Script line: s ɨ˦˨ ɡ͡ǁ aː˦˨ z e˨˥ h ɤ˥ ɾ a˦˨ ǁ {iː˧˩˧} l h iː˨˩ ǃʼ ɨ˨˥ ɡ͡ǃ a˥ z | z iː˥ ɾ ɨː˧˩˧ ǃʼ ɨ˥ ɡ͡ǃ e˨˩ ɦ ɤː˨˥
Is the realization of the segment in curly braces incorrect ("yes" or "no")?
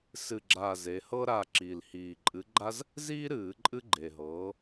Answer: yes